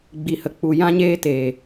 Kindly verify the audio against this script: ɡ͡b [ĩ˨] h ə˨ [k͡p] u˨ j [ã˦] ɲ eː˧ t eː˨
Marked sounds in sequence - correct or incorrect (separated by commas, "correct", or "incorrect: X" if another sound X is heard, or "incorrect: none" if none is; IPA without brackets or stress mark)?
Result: incorrect: i˨, correct, incorrect: ã˧